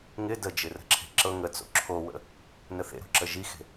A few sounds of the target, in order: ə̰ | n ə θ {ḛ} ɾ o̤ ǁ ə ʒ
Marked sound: correct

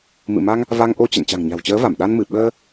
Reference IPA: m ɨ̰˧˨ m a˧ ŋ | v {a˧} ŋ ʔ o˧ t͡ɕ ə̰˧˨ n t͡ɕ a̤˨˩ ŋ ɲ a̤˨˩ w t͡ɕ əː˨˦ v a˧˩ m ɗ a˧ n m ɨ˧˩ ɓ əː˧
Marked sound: correct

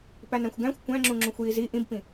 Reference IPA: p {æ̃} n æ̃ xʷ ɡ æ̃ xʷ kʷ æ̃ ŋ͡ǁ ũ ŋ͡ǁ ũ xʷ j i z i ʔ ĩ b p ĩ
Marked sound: incorrect: æ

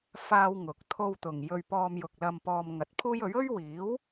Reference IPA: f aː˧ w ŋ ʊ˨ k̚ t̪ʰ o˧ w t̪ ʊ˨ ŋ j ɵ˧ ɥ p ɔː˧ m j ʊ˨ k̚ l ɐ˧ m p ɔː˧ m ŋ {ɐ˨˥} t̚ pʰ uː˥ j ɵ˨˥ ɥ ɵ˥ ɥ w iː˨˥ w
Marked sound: correct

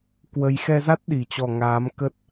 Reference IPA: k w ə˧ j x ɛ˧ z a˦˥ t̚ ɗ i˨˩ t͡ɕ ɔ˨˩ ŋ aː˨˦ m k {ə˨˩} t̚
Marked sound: incorrect: ə˦˥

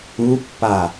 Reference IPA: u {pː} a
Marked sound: correct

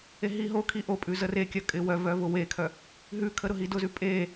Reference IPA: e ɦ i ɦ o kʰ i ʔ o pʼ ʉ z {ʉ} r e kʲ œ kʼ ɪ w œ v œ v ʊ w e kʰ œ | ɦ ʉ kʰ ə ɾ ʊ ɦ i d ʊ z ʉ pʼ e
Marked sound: incorrect: ə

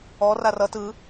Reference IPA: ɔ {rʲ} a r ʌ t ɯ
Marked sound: incorrect: r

